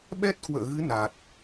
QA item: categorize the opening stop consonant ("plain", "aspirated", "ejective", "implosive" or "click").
implosive